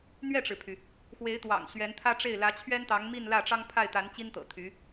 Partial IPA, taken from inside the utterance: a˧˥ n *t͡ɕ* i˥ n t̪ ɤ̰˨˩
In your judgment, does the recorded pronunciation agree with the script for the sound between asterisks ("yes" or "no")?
yes